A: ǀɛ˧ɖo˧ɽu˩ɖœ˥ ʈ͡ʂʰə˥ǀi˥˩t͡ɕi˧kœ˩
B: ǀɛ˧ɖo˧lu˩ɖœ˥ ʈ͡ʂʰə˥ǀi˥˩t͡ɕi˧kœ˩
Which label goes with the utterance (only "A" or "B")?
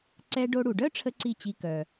A